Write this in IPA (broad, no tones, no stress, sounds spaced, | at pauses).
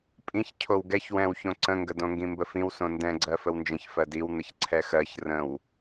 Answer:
pʼ ĩ ç cʰ o w ɡ ɛ ç w ɛ̃ w ç õ ǀ ə̃ ŋ ɡ ə d õ ŋ ɡ ĩ m b ə f ĩ w s õ n d ɛ̃ ɡ͡ǀ ɜ f ə w n d͡ʒ ə̃ ç f ɜ d i w n̪ ə ç ǀʰ ɛ x ɜ ç r ə̃ w